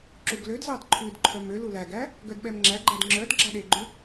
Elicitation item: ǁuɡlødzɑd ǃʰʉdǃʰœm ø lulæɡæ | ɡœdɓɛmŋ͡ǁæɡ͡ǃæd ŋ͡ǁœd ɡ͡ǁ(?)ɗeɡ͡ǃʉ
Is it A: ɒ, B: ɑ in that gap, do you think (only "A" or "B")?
B